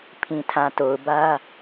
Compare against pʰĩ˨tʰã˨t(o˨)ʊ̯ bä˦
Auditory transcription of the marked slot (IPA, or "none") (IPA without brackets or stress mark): o˨